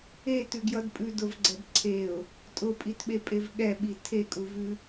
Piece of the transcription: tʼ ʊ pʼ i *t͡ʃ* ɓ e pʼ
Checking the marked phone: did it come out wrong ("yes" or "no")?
yes